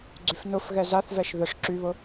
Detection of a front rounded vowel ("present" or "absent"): present